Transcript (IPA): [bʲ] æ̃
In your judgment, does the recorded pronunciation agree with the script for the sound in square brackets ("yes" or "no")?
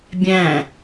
yes